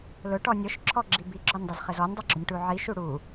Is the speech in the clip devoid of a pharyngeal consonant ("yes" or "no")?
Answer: no